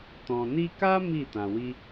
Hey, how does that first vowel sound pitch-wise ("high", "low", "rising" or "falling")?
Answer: low